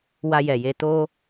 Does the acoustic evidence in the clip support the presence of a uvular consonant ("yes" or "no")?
no